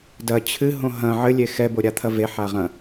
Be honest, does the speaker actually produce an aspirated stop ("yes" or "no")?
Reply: yes